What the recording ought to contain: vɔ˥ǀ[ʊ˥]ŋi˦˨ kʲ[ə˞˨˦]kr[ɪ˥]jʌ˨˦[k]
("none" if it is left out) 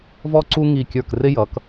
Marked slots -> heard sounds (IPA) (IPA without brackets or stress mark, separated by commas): u˥, ə˞˦˨, ɪ˥, k